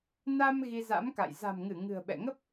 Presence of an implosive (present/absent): present